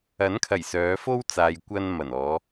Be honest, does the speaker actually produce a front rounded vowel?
yes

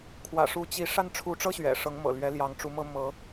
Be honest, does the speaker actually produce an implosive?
no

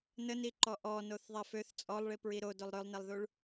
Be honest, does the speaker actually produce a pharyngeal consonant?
no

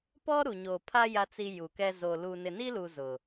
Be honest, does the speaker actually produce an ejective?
no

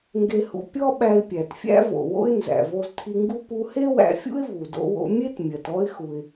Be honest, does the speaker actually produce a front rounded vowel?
no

